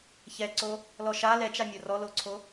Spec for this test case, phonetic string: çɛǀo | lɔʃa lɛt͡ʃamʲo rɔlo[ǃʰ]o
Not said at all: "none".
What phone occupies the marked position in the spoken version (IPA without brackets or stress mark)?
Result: ǀʰ